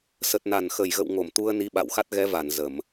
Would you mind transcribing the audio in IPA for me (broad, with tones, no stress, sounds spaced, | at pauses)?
s ə˨˩ t̚ n a˨˩ n x ə˨˩ j ɣ ə̰˧˨ w ŋ o˧˩ m t̪ u˧ ə̯ n i˨˦ ɓ a̰˧˨ w x a˦˥ t̚ ɣ ɛ˨˦ v a˧˩ n z ə˧˩˨ m